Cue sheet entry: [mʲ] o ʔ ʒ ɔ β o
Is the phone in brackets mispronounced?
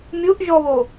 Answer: no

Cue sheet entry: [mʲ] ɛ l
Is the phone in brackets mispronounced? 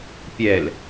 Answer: yes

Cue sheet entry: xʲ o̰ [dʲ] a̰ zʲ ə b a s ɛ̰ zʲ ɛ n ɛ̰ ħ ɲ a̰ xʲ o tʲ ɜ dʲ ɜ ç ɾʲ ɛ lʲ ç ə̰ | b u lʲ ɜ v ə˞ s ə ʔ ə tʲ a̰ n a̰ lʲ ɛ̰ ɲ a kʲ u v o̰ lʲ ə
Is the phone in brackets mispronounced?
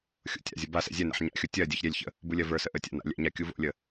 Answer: yes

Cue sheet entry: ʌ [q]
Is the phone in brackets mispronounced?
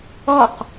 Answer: no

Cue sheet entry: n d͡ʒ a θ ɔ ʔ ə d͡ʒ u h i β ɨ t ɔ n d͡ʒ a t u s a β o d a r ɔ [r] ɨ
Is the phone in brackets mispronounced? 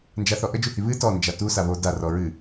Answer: yes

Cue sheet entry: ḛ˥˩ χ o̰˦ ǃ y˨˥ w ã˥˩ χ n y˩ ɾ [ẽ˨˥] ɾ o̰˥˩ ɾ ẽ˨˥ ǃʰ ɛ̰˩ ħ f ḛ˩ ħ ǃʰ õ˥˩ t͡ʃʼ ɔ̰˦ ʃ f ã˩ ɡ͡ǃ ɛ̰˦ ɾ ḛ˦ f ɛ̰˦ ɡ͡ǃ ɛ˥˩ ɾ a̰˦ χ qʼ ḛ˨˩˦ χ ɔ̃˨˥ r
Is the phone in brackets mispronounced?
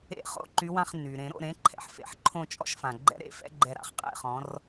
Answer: yes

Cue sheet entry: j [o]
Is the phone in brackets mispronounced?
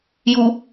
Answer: yes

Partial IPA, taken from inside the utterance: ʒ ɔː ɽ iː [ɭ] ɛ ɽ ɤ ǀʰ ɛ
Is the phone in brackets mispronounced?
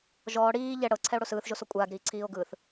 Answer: yes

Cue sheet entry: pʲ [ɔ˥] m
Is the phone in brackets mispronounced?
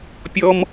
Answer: no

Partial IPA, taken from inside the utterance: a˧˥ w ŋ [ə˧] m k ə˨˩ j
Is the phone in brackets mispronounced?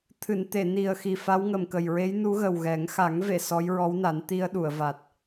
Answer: yes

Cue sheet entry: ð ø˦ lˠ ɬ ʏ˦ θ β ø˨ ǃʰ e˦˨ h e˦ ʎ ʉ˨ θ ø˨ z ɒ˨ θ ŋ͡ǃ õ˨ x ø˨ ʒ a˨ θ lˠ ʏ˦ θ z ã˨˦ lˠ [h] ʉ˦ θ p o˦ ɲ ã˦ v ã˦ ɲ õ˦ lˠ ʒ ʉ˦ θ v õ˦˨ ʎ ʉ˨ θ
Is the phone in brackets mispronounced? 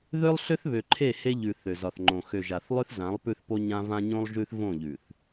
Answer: yes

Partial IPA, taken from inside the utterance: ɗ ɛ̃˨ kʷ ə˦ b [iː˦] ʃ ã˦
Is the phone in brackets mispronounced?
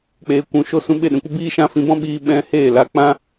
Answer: no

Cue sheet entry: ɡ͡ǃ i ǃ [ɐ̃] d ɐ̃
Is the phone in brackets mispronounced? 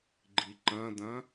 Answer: no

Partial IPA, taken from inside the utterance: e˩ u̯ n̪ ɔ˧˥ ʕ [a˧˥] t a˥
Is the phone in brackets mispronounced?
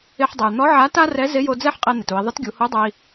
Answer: no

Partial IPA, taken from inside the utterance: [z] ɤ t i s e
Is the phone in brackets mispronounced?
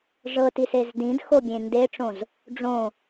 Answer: yes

